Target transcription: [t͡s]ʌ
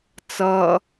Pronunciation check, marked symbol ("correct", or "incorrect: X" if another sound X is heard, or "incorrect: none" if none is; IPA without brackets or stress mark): correct